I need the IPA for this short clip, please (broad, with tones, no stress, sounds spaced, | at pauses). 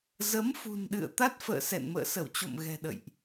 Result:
z ə˨˦ m f ṳ˨˩ n ɗ ɨ̰˧˨ ə̯ t̪ a˦˥ t̚ f ə̰ː˧˨ s ɛ̰˧˨ n m ə̰ː˧˨ s ə˧˩ w t͡ɕ o̰˧˨ m ɣ ɛ̤˨˩ ɗ ə̰˧˨ j ʔ